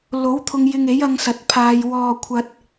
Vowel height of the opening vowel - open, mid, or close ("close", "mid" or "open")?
mid